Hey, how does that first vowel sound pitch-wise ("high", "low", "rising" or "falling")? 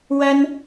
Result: high